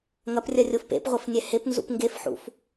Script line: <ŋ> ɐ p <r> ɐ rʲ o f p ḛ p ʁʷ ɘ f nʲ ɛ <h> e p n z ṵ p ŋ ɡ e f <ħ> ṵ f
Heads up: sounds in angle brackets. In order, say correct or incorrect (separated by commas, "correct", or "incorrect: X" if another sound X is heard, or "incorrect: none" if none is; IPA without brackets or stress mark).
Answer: correct, incorrect: rʲ, correct, correct